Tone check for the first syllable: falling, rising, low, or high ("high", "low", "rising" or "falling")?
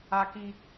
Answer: high